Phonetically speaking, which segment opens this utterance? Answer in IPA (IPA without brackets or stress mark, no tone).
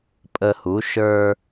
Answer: pʼ